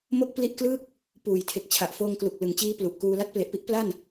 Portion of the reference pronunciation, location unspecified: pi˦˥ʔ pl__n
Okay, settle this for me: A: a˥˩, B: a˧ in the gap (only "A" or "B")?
A